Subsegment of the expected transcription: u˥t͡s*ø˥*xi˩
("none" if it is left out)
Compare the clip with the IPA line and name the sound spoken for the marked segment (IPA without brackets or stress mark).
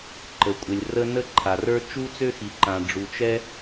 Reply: ø˥